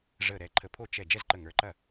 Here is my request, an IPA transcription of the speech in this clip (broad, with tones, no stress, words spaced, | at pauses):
ʐəː˧˩ɾɛ˧˩ǃʰə˧˩pʰo˥˩ t͡ʃɛ˧˩ d͡ʒɛ˥˩zǃə˧˩ ŋə˞˩˥ǃɐ˥˩